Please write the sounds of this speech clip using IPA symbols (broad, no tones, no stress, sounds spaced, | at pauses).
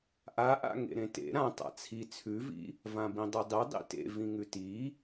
ʔ a ʔ a̰ ŋ ḛ ɾ ẽ t ḛ ɾ ã tˤ a̰ t͡sʰ i t͡sʰ ʉ v ḭ | v ã b ĩ dˤ e dˤ i dˤ ḭ t ḛ v ĩ ŋ ʉ t i